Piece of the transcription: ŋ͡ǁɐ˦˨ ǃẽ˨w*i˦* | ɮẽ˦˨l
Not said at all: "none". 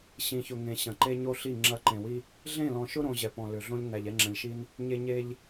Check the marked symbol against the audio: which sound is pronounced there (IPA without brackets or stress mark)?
i˦